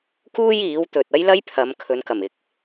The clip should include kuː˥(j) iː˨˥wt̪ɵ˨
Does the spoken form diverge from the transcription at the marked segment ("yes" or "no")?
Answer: no